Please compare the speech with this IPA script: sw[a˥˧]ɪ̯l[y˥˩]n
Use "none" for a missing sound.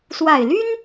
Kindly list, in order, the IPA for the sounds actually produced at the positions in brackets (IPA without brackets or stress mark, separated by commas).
a˨˩, y˥